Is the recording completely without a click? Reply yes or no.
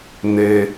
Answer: yes